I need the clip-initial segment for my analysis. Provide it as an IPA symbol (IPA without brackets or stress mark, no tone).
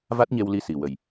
v